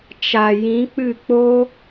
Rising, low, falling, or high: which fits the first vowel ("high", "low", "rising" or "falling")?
low